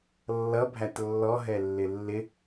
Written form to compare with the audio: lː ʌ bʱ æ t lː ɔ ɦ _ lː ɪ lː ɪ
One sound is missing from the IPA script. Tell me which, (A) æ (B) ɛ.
B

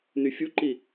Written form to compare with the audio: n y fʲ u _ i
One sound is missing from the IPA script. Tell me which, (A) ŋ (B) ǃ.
B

